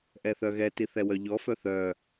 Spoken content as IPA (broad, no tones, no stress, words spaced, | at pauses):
ʔɛθœɣɛti θɛwœʎɔfœ θœ